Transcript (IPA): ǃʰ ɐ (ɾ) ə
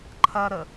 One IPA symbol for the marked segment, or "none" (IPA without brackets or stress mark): ɾ